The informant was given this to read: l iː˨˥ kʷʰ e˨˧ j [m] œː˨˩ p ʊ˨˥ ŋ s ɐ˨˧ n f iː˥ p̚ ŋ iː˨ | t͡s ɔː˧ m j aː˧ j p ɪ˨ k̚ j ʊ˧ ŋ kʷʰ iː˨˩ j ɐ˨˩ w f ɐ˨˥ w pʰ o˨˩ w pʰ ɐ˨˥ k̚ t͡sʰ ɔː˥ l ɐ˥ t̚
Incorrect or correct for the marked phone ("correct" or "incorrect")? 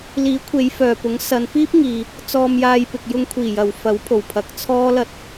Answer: incorrect